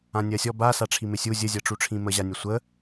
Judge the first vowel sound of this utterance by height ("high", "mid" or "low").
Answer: low